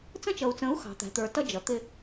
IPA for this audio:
t͡s ə̃˦ t͡ʃ ʌ˨ u̯ t͡s ə̃˨˦ u̯ x ɑ̤˨ t̪ æ̤˨ t̪ ə˞˨ t ʌ˦ d͡ʒ ʌ˨ t̪ ɪ˦

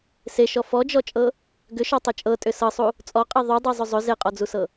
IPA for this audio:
s e ʃ ɔ f ɔ d͡ʒ ɔ t͡ʃʼ ɤ | ɡ ʏ ʃ ɔ tˤ ʏ t͡ʃʼ ɤ tʼ ʏ s ɤ sˤ u | t͡sʼ ɔ qʼ i ðˤ u dˤ i zˤ ʏ zˤ ʏ z e qʼ ɔ d͡z u s ɤ

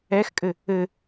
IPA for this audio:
ɛ x kʼ ɘ | ɘ

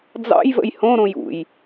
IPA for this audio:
d͡z ɑ̰ j v ə̰ j h õ ɾ õ j ṵ j

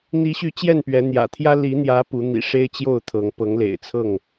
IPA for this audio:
n̪ i˨˦ ɕ y˨˦ t͡ɕ j ɛ˥˨ n p ɥ ɛ˨˦ n̪ j ä̰˨˩ t̪ʰ j ä˦ l i˨˦ n̪ j ä˨˦ p u˨˦ n̪ ḭ˨˩ ʂ e˦ ɪ̯ t͡ɕ j o˥˨ ʊ̯ t̪ʰ ɤ˨˦ ŋ p ɤ˨˦ ŋ l ḛ˨˩ ɪ̯ t͡sʰ ɤ˥˨ ŋ

